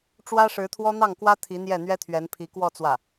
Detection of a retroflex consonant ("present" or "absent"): present